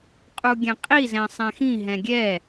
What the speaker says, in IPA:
qʼ u ɡʲ ɛ̃ qʼ i z ɛ̃ sˤ ɛ̃ x ĩ ɦ ɛ̃ ɡʲ ɛ

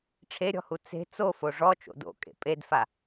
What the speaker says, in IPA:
ʈ͡ʂʰ e ɾʲ ɔ̤ h u t͡s e̤ t͡s o f o ʐ ɔ t͡ʃ o̰ d o̰ kʼ ḛ pʼ e d f a

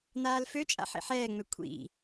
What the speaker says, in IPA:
n̪ aː l f ø t͡ʃʼ a̰ ħ ḭ ħ ɛː ŋ͡m ø kʷʰ ḭ

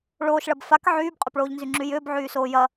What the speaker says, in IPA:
ɭ oː ʃ ɭ ɐ b f a k ʕ yː b qʼ ʏ p ɭ oː ʎ n z y ŋ͡ǁ y j ʏː b ʕ yː s oː j ɐ

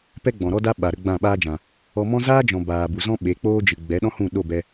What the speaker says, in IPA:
p ɛ˦ ɡ͡b ɔ̃˨ ɾ ɔ˦ d a˦ ɓ a˨ ɾ ə˧ ɡ͡b ã˦˨ ɓ aː˦ d͡ʒ ã˨ | ɔ˧ m ɔ̃˦ z aː˦ d͡ʒ ɔ̃˨ b aː˨ b u˨ z ɔ̃˦ ɓ e˨˦ k͡p oː˦ d͡ʒ ɨ˨ ɡ͡b ɛ˨˦ ɗ ɔ̃˦ h ũ˦˨ ɗ o˦˨ b ɛ˧

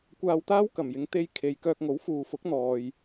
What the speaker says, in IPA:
kʷ aː˧ w t̪ aː˥ w k ɐ˨˩ m j ɪ˨˧ ŋ t̪ e˧ j kʰ e˨ j k œː˧ k̚ ŋ o˨˥ w f uː˨ f ʊ˨˥ k̚ n̪ ɔː˨ j

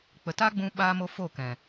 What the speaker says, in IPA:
k͡p ə˨ t a˦ ɡ͡b ũ˧ ɓ a˦ m o˧ f o˦˨ k ɛ̃˨

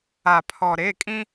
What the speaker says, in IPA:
a˨ pʰ ɔ˨ ɾ e˦˨ kʼ ĩ˦

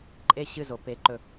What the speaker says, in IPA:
ǃʼ e˥˧ ɕ ɨ˥˧ z o˨˦ p e˨˦ ǃ ɵ˥˧

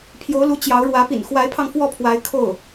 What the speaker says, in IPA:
pʰ j o˧˥ ʊ̯ l u˧˥ t͡ɕ j ɑ˧˥ ʊ̯ ɻ w ä˧˥ p ḭ˨˩ n x w a˧˥ ɪ̯ pʰ ɑ˧ ŋ f w ɔ˥˩ pʰ w a˧˥ ɪ̯ kʰ o˥˩ ʊ̯

